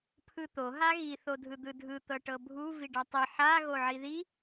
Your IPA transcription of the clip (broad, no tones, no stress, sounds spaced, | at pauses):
pʰ ɯ t̪ o ɦ a ɣ i θ o dʱ ɯ d̪ ɯ dʱ ɯ t̪ ɤ ʈ ɤ bʱ u v i ɖ a tˤ ɤ ħ a ɣ o ʕ i ð i